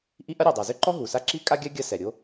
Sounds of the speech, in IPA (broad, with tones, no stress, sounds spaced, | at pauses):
ʔ i˥ ʔ ɐ˥ ɾʲ ɛ˩ dˤ a˩ z ʏ˥ ǃ ɔ˥ ɦ u˩ s a˥ ǁ i˥ kʼ a˥ ɡʲ a˥ ɡʲ ɐ˥ s ɛ˩ ɾʲ o˥